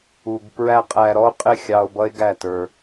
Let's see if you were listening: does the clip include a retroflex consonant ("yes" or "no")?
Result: no